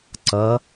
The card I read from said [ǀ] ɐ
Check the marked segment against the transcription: correct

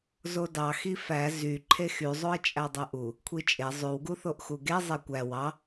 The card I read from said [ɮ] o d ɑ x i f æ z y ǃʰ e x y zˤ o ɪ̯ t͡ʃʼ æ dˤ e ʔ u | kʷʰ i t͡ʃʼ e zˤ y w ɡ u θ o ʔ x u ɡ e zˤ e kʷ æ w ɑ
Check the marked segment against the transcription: incorrect: z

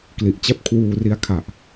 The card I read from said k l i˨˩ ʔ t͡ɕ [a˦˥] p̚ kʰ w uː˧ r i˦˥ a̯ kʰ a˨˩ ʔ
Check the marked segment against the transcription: incorrect: a˥˩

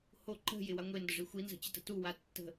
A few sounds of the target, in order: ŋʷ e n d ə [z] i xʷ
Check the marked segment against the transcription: incorrect: ʐ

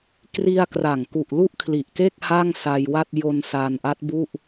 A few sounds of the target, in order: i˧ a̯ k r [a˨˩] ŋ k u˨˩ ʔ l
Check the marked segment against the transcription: correct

